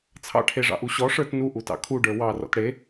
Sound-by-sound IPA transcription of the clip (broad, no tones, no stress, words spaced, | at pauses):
t͡sʰɑ̰ʈʰeʐɑ̰ʔu ɕɔʂə˞t nuʔutɑ̰ kʰuɖə˞ wɑrɔ̰t ɽe